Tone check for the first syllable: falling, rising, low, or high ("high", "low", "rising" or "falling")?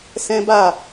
high